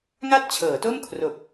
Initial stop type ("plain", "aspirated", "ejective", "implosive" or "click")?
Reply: plain